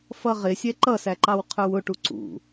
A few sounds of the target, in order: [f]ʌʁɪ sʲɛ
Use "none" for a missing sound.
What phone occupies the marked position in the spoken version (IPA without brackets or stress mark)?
f